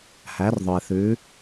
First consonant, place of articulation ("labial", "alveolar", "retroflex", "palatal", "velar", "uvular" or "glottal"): glottal